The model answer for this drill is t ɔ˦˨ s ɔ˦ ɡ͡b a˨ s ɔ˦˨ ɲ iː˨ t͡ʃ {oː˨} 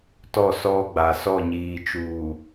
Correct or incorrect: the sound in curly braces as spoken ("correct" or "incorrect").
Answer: incorrect